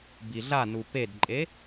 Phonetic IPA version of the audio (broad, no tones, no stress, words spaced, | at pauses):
biɮanu pedǃʼe